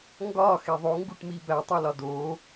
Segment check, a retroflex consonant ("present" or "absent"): present